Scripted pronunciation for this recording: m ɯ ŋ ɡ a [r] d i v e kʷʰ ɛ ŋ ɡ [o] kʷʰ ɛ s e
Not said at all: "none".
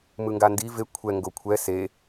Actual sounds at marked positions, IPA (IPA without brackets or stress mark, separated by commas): n, o